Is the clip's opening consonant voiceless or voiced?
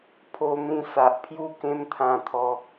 voiceless